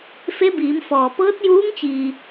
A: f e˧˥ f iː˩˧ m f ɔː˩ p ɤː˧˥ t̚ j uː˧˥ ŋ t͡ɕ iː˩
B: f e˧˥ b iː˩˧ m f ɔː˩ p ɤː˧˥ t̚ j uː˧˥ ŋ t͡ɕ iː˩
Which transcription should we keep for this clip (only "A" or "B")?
B